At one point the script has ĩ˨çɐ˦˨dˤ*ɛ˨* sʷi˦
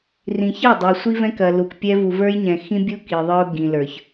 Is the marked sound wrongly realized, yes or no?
no